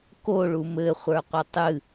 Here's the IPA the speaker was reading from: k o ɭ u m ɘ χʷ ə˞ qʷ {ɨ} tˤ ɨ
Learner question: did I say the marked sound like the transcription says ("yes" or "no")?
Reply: no